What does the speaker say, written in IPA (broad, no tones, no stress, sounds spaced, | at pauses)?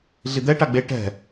ɮ i d̪ ɛ ʈ a ɡ͡b e ʈ ɛ̤